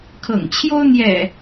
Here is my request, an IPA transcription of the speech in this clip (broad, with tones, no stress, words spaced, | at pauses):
kʰɤ̰˨˩ŋt͡ɕʰjo˦ʊ̯ n̪jɛ̰˨˩